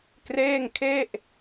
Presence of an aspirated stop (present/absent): present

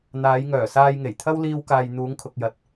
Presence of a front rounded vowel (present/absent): present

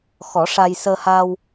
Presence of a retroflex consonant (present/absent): present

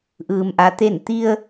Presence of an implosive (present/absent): absent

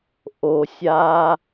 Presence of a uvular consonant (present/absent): absent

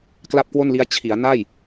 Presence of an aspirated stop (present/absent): present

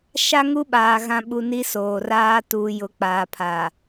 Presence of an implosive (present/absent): present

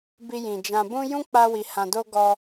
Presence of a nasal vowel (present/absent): present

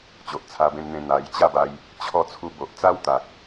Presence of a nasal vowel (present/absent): present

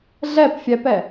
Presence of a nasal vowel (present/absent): absent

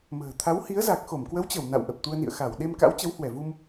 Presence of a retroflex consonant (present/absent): absent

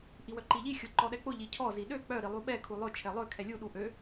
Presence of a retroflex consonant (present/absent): absent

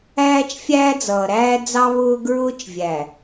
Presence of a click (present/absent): absent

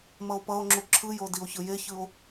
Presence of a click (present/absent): present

